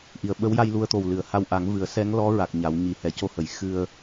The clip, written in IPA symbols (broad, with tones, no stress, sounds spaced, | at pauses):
ʔ i˨˩˨ ə̯ ɓ ə˧˥ w j a˧ j l u˧ ə̯ t̪ o˨˩ w l ɨ˨˩˨ ə̯ h a˧ w ʔ a˨˩˦ ŋ v ɨ˨˩˦ ə̯ s ɛ˧˥ ŋ l ɔ˧˥ ɹ a˨˩ k̚ ɲ a˨˩˦ w ɲ i˨˩ h ɛ˨˩ c o˧ h ə˨˩˨ j x ɨ˧ ə̯